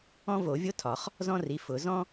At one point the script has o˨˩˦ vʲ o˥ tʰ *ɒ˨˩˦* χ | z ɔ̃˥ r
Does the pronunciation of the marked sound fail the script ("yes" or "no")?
no